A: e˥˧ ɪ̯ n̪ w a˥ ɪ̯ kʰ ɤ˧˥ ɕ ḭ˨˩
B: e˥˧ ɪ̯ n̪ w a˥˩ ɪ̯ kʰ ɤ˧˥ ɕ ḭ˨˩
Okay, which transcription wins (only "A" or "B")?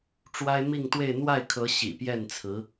B